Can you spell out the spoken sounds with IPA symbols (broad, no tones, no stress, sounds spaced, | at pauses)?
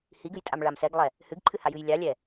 h i ɡ ɨ j tʼ a m ɭ a m s ɛ ɡ lˠ ɛ | h ɨ ɡ ǃʰ ɨ h a j ɨ j lʲ a lʲ ɛ